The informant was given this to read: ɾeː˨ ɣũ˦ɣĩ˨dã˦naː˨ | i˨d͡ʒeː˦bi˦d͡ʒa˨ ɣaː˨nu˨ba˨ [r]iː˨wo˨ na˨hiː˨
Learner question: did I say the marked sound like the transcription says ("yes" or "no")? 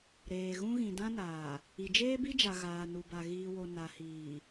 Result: no